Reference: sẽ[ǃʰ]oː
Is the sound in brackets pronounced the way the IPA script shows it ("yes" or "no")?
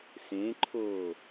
yes